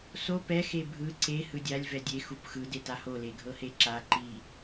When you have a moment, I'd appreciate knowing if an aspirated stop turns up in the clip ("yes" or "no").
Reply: no